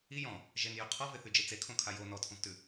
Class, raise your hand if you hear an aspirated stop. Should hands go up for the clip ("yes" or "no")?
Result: yes